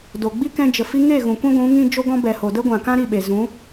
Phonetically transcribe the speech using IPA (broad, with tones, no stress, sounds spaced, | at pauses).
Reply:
d o˨ ɡ͡b i˦ k ɛ̃˧ d͡ʒ ə˨ f i˧ ŋ e˦˨ ɣ ũ˨ kʷ ĩ˦ ɡʷ ũ˨˦ ŋ ĩ˦ d͡ʒ o˦ ɡ ɔ̃˦ b ɛ˨ h o˨ d ə˦ ɡʷ ã˨ k ã˦ ɾ i˦˨ ɓ e˨ z ũ˨˦